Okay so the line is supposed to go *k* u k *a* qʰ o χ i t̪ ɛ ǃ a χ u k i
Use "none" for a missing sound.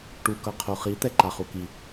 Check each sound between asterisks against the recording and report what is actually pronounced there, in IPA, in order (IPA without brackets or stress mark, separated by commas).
ʈ, ʌ